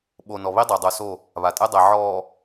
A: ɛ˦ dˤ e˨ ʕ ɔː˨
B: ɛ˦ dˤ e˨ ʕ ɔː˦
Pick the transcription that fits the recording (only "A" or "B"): A